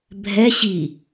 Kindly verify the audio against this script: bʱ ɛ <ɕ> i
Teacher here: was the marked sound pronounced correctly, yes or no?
yes